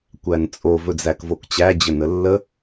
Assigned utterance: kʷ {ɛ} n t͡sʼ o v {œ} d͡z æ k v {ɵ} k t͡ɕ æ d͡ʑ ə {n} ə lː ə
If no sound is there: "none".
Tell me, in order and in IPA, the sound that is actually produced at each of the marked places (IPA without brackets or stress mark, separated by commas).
æ, ɵ, o, n